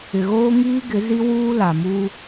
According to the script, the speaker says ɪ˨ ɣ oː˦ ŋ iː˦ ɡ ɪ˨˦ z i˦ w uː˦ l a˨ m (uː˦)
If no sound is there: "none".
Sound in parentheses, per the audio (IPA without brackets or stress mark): uː˦